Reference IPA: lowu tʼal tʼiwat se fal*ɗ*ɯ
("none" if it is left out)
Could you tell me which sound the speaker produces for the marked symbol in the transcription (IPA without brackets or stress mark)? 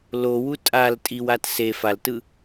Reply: t